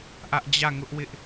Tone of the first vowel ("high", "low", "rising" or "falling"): high